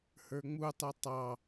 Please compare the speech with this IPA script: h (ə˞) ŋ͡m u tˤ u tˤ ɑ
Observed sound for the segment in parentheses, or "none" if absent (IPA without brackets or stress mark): ə˞